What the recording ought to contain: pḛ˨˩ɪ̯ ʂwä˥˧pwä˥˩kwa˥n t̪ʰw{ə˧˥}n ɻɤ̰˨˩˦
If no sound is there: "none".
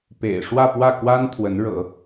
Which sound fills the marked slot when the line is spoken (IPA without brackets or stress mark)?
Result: ə˧˥